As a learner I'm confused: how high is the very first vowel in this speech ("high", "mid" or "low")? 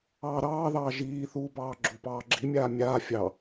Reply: low